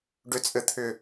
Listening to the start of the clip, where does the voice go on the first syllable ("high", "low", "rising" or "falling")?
low